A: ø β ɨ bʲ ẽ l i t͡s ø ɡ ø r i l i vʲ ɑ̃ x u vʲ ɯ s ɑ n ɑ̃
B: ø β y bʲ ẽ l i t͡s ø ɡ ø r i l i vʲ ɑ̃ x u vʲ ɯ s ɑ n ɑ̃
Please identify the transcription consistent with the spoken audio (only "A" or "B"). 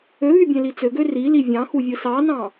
B